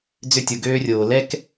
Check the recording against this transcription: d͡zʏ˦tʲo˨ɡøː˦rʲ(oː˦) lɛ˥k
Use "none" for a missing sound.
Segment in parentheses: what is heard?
oː˨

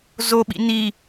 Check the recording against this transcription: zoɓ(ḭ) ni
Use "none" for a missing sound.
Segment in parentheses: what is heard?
ḭ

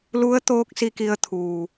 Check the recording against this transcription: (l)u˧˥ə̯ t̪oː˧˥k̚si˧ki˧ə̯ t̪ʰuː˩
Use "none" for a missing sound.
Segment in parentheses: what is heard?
l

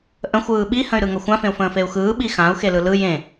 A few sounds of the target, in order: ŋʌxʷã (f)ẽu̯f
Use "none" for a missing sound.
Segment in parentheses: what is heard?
f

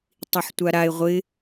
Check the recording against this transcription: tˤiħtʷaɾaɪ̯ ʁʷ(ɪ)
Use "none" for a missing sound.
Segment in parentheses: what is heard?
ɪ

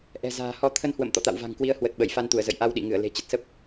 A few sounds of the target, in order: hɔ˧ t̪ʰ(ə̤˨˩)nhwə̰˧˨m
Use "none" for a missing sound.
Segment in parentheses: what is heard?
ə˧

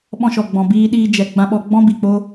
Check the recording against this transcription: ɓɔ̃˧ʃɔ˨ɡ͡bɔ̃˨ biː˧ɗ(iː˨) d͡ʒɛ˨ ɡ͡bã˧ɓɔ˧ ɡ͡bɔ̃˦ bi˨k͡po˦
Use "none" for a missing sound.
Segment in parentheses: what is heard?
iː˧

